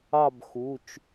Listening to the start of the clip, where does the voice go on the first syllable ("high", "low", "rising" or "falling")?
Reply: falling